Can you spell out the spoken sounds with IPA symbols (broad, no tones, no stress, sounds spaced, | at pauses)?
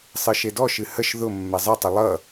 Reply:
sˤ ɨ ʃ e d ɔ ʃ ɨ h ə ʃ ð ʊ mː ɛ zˤ ɨ tˤ ə lˠ ʌ